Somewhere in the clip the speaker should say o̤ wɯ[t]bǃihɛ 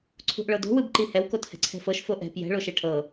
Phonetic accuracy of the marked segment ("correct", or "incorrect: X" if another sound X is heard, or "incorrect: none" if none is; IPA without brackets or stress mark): incorrect: none